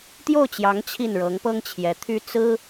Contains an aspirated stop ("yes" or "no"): yes